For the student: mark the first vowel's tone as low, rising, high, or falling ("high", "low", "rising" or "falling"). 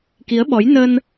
rising